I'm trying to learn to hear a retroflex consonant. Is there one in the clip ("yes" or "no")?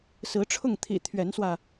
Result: yes